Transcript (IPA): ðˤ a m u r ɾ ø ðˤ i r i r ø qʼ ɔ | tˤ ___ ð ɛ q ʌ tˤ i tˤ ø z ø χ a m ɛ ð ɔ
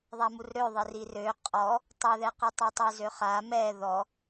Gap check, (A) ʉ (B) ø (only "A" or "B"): B